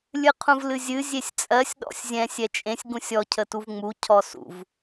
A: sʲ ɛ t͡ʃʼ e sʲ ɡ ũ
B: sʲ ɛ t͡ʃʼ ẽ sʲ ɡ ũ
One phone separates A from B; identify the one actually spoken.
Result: B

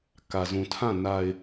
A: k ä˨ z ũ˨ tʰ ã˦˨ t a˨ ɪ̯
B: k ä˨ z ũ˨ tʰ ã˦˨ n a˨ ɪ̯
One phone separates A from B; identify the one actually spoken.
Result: B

